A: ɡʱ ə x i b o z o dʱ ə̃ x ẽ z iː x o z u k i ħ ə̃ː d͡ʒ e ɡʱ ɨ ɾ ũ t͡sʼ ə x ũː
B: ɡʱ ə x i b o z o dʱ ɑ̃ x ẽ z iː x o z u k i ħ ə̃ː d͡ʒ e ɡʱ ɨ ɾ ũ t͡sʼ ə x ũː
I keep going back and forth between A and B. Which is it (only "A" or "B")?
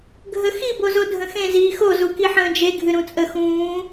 A